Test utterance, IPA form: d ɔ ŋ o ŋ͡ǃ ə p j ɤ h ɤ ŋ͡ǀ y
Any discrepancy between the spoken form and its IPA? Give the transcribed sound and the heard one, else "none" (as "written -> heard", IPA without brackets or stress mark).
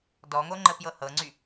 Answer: none